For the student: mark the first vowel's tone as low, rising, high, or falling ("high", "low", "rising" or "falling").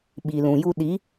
low